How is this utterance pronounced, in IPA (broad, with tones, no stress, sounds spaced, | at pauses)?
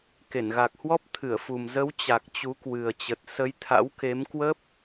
k e˧˩ n ɣ a˨˩ k̚ h w ɔ˦˥ p̚ t̪ʰ ɨ˧˩ ə̯ f u˨˩ m z ə˨˦ w t͡ɕ a˨˩ k̚ t͡ɕ u˨˦ k w ɨ˨˩ ə̯ t͡ɕ ə˨˩ t̚ s ə˨˦ j t̪ʰ a̰˧˥ w k e˨˦ m k w ə˦˥ p̚